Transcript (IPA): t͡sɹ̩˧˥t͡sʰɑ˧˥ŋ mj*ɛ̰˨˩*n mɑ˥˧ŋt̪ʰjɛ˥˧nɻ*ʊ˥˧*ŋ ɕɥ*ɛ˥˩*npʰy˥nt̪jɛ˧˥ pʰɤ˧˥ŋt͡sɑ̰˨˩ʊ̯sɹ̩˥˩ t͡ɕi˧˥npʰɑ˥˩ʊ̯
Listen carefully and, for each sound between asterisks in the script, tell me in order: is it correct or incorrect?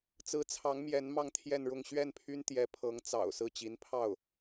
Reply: incorrect: ɛ˧˥, correct, correct

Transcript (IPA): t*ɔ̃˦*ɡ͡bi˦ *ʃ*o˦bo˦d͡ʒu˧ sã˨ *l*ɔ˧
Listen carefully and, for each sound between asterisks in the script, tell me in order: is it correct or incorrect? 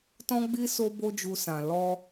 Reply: correct, incorrect: s, correct

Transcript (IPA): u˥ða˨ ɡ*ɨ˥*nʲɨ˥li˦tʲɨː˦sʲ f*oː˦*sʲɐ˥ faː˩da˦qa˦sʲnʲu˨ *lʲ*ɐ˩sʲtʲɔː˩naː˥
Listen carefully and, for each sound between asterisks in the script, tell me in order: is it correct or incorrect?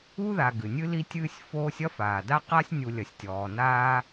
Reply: incorrect: ɨ˩, correct, correct

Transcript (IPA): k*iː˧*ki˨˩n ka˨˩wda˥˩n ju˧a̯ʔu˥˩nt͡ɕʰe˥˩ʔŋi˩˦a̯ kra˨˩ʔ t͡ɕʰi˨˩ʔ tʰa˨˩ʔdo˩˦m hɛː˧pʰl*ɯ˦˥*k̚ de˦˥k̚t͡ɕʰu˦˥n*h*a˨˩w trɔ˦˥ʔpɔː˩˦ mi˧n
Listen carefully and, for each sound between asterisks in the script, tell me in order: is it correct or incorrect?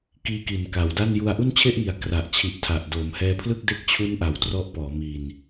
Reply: correct, incorrect: ɯ˥˩, incorrect: ʔ

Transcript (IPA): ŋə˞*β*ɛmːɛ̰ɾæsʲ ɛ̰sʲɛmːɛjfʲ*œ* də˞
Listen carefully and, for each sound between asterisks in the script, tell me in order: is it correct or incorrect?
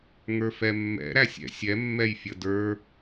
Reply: incorrect: f, incorrect: ə

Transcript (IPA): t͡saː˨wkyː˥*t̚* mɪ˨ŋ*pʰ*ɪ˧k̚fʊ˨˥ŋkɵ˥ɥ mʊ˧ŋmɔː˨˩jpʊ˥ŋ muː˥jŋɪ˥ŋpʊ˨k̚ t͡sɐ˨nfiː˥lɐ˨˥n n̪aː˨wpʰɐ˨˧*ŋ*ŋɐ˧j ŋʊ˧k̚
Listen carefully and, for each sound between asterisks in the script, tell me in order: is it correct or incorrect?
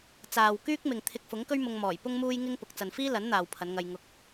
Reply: incorrect: k̚, incorrect: t̪ʰ, incorrect: n

